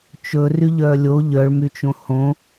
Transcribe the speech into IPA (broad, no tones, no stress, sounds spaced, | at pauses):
t͡ʃ ɵ r y ʎ œː lʲ o ʎ œ ɭ m y t͡ʃ õ h õ